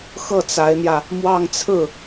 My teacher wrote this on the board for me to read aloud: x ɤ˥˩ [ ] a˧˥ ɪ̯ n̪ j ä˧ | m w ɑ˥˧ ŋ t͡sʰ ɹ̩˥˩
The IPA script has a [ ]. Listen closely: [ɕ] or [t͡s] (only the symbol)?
t͡s